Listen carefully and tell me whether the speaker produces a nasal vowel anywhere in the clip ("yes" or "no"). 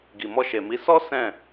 yes